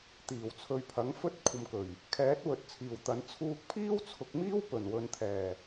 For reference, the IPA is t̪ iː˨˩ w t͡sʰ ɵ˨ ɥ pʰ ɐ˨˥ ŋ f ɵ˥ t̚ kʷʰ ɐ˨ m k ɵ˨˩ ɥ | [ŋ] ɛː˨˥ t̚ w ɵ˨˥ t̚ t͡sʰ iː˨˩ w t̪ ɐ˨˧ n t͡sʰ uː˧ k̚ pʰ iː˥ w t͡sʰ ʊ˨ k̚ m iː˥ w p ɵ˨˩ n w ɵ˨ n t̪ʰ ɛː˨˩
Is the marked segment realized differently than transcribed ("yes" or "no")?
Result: yes